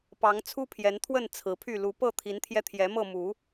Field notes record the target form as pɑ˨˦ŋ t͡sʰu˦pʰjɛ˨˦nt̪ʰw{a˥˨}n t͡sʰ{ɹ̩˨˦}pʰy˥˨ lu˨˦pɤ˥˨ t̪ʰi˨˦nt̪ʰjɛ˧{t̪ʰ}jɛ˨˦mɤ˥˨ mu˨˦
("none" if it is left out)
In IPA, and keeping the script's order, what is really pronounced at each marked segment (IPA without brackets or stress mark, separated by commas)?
ə˥˨, ɹ̩˨˦, t̪ʰ